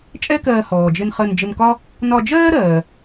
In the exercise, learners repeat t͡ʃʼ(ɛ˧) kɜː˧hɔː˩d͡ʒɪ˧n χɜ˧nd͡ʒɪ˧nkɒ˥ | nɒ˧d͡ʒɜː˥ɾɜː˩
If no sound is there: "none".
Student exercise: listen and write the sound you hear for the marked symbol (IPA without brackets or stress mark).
ɛ˥